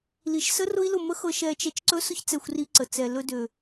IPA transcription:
l i˨ ʃ s ə˦ r ʊ˦ i̯ l ʊ˦˨ m ə˦ x ɤ˧ ʃ ɛ˧ t͡ʃ ɛ˧ t͡ʃ ǀ ɵ˦ s ʊ˦ ç t͡s ɛ˧ xʷ r i˧ ǀ ə˨ t͡s ɛ˨ l ɵ˧ d ø˨

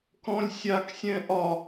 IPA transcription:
k ɔ̃ lʲ sʲ a k sʲ ɛ̃ ʔ ɒ

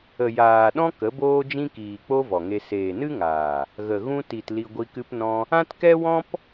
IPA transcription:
ə˨ j aː˨ ɗ ɔ̃˦ k ə˨˦ b oː˦ d͡ʒ ĩ˦ k iː˨ k͡p o˦ v ɔ˨ ŋ e˧ s eː˨ n ɨ˦ ŋ aː˨ | ɣ ə˨ ɣ ũ˧ t i˨ t l i˧ ɡʷ i˧ k ɨ˦ p n ɔ̃˦ | ã˦ t k ɛ˦ w ɔ̃˦ p

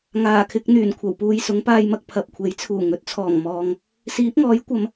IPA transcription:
ŋ aː˨˩ kʰ ɪ˧ k̚ n̪ yː˨˩ n kʷʰ ɐ˨˩ w p uː˧ j s ʊ˨˥ ŋ p aː˧ j m ɐ˧ k̚ pʰ ɐ˨ p̚ kʷʰ e˨˥ j t͡sʰ uː˨˩ ŋ ɵ˨ t̚ t͡sʰ ɔː˨˩ ŋ m ɔː˨ ŋ | s iː˨˥ p̚ ŋ ɔː˨˥ j kʷ ɐ˨˧ m

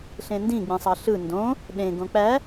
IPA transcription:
ɬ ẽ n d ĩ ɡ͡b ĩ sˤ ɑ ɬ ɯ n d õ | ɗ ẽ ɡ õ k͡p æ

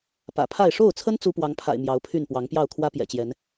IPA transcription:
p ä̰˨˩ pʰ a˥˨ ɪ̯ ʂ o˥˨ ʊ̯ t͡sʰ ə˦ n t͡s u˦ p w ɑ˨˦ ŋ pʰ a̰˨˩ ɪ̯ m j ɑ˨˦ ʊ̯ pʰ y˥˨ n p w ɑ˨˦ ŋ p j ɑ˥˨ ʊ̯ kʰ w ä˦ p j ɛ̰˨˩ t͡ɕ j ɛ˨˦ n

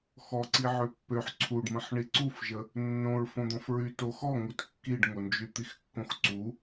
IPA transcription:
x ɔ ǀ i ʕ ø pː ø ħ ǀʰ u ɖ m ə̃ ħ ɳ i ǀ u f ʒ ə | nː õ ɹ f õ d̪ ɔ̃ f ɹ y t o x ɔ ŋ u t kː i ɖ ŋ o n d͡ʒ y t̪ i x kː õ x ǀ u

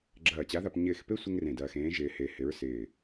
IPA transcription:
ɡ͡ǁ ɐː˧˩ t͡ɕ a˧˥ ð a˧ p ɲ ɪː˧˩ x p e˥ sʷ ɪ˥ ŋ r ẽ˧˩ d ɐː˧ x ẽː˧˥ ʒ ɪː˧ h e˧ h ɪ˧˥ ɹ s ɪː˧˩

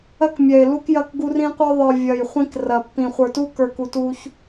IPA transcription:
ɐ˦ k mʲ ɛ˨ ɪ̯ l u˦ k j ɐ˦˨ k ɡ u˦ r ĩ˦ qʷ ə˞˦ ðˤ ə˞˨ vʲ ɐ˨ j χʷ ĩ˦ k r ɐ˨ pː ĩ˨ χʷ ə˞˨ t u˦ k ə˞˨ k u˨ t u˦ ç

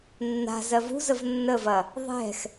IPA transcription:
nː a̤ z ɜ v ṳ z ə v nː ə v ɐ | ðˤ ɛ̤ x

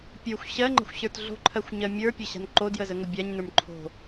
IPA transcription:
pʲ ə˞ xʷ ɕ ɜ ŋ͡ǃ ə̤ xʷ ɕ ə˞ t ɮ o̤ ǃʰ ɜ xʷ ɲ ɜ mʲ ə˞ pʲ ə ɕ a̤ n ǃ o d j ə z ə ŋ ə bʲ a ɲ n ə˞ m ǃʰ o̤

